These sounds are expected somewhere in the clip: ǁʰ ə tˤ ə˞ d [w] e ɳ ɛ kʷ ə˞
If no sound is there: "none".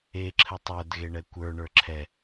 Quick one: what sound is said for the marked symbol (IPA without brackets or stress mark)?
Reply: ɣ